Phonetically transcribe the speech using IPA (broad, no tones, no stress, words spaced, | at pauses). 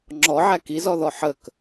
ŋ͡ǁɔʕæ kizɔðɔ ħək